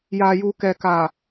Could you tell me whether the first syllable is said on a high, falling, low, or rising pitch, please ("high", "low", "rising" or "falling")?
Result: low